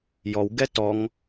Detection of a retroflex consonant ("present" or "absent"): absent